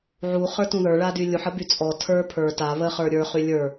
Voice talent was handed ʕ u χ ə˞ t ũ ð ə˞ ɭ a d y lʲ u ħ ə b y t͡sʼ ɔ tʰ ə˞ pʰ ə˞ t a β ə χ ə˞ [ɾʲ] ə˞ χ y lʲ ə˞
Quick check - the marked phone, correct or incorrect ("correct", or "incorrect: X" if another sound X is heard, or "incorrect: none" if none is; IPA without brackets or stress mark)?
correct